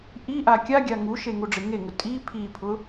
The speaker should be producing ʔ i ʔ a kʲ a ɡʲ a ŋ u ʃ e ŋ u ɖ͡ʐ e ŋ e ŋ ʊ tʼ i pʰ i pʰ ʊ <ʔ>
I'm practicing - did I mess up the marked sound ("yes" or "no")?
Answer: yes